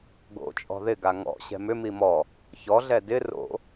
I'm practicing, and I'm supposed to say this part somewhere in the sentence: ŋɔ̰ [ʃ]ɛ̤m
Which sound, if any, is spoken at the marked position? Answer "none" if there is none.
ɕ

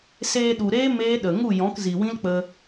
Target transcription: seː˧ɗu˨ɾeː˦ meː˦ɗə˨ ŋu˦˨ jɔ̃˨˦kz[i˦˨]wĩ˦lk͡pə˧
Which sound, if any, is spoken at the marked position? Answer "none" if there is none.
i˨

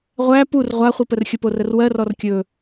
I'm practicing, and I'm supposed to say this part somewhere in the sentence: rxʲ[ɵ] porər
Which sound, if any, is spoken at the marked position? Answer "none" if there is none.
ə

